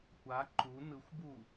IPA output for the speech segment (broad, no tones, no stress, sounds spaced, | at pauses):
kʷ a ǃ u n ɯ xʷ b u